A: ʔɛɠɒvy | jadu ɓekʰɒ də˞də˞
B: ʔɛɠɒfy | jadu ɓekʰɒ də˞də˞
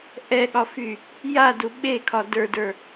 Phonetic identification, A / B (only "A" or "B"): B